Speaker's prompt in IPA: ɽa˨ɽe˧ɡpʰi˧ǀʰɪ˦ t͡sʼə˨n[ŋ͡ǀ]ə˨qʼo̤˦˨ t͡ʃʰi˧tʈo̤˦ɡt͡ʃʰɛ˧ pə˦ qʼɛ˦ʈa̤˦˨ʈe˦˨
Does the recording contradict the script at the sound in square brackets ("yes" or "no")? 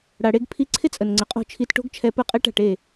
no